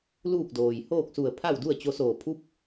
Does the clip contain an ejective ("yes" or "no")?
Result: no